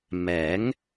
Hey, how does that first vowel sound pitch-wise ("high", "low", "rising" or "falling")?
rising